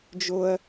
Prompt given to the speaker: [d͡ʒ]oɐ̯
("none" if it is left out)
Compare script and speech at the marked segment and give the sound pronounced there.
d͡ʒ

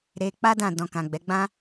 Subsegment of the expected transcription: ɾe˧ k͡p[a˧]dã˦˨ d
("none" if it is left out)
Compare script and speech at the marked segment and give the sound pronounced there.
a˦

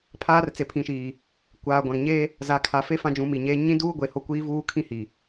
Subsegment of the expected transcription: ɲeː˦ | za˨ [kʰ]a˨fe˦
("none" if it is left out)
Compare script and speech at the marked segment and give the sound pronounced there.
kʰ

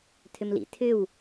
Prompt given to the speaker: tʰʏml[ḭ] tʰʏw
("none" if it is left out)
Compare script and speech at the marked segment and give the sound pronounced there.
ḭ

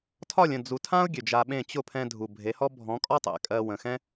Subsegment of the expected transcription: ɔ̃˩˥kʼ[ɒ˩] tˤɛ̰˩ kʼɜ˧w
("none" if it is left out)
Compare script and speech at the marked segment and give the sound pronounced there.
ɒ˥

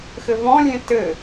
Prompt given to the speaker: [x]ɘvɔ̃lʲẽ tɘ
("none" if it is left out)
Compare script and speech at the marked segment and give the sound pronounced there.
x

